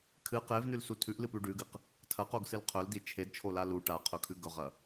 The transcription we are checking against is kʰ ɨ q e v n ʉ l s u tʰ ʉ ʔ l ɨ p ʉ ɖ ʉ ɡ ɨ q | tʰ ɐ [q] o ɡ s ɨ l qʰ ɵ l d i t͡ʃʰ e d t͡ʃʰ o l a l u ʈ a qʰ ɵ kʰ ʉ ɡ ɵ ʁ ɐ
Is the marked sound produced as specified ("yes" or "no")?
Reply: yes